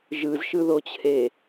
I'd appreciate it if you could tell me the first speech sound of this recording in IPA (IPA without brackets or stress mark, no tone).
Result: ʒ